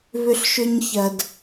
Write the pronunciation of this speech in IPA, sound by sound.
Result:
β ʏ˧ ɬ ʃ ʏ˧ ɲ ç ɐ˨ d

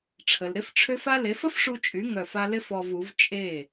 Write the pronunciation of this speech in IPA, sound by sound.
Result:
ʈ͡ʂʰ ə˨ l ɾ ɪ˦ f ʈ͡ʂʰ ø˦ f a˦ l e˨˦ f ə˦ f ʂ u˧ t͡ʃʼ y˨˦ ŋ œ˦˨ f a˦ l ɪ˦ f ɔ˧ v u˨˦ v t͡ʃʼ e˦˨

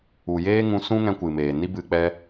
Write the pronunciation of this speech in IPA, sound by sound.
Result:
u˨ j eː˦ ŋ ũ˧ s ũ˦ ŋ ɛ̃˧ kʷ ɨ˨ m eː˨ n i˦ b ɨ˧ k͡p ɛ˦

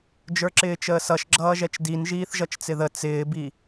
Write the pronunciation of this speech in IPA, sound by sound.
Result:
d͡ʒ ə˞ ǁ ɪː t͡ʃ əː s ʌ ʃ ɡ͡ǁ ʌː ʒ ɛ t͡ʃ d i n ʒ iː θ ʒ ʌ t͡ʃ t͡s ɪ ð ə t͡s ɪː b i

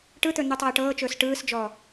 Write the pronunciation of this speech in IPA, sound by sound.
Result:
ʈ ɯ t̪ ɵ n̪ u tˤ ɤː ʈ ɤː t͡ʃ ɵː s ʈ ɯː s d͡ʒ ɔː

